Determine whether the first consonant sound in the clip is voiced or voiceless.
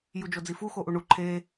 voiced